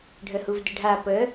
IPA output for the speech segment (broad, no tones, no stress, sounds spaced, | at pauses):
ɖʱ ə h u v d ɪ ɖʱ a p ə